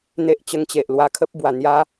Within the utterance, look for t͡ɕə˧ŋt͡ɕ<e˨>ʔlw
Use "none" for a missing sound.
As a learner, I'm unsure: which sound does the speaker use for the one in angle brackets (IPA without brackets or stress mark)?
e˨